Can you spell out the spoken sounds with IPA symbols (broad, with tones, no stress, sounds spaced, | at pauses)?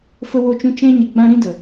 f ə˦ w o˦ t͡ʃ ũ˦ t͡ʃ ɛ̃˦ ɲ ə˧ ɡ͡b ã˦ ɾ ĩ˦ d ə˨